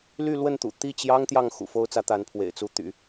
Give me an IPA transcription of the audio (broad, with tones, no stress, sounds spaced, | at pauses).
l y˥˧ l w ə˥˩ n t̪ ṵ˨˩ t̪ i˥˩ t͡ɕ j ɑ˥ ŋ t̪ j ɑ˥˩ ŋ x ṵ˨˩ f o˥ ʊ̯ t͡s ä˧˥ t̪ a˧˥ n pʰ w ḛ˨˩ ɪ̯ t͡s u˥ t̪ y̰˨˩˦